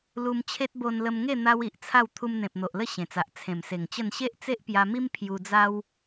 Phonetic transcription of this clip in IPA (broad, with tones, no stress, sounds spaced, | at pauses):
l u˧ m t͡ɕʰ e˦ t̚ b o˧ n l ə˧ m ŋ e˥˧ n̪ a˦ w i˨ ʔ t͡sʰ a˥˧ w t̪ʰ u˧ m n̪ ẽ˨ p̚ n̪ o˨ ʔ l ə˥˧ ɕ ẽ˨˩ t͡s a˨ ʔ t͡sʰ ẽ˨˩ m s e˨˩ ŋ t͡ɕ ə˥˧ n ɕ e˦ ʔ t͡s e˦ ʔ p j a˧ m i˦ m pʰ j u˧ d͡z a˦ w